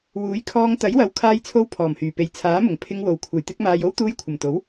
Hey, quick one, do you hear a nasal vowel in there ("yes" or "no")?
no